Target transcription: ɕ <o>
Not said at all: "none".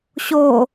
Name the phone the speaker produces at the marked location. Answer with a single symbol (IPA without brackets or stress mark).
o